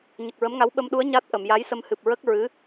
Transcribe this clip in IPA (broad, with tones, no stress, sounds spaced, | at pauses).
ɲ ə˨˩ k̚ ɹ ə˧˥ m ŋ a˧˥ w ɓ ə˧ m ɗ u˧˥ ə̯ ɲ a˦˥ t̚ ʔ ə˨˩˨ m j a˧˥ j s ə˧ m h ɨ˨˩ p̚ ɹ ə˦˥ k̚ ɹ ɨ˧˥